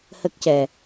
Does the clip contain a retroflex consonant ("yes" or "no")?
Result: no